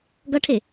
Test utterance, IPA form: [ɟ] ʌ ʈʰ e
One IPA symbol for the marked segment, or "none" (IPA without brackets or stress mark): ɡ